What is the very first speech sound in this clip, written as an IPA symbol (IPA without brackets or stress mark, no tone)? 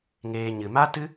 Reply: ŋ